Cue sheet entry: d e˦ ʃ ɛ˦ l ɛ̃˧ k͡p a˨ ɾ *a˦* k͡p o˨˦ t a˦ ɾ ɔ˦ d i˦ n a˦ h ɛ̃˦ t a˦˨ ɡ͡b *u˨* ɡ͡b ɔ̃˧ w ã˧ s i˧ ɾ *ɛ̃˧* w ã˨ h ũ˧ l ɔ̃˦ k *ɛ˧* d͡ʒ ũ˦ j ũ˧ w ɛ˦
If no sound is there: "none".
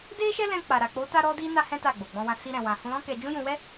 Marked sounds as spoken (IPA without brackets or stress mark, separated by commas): a˨, o˨, ɛ̃˨, ɛ˧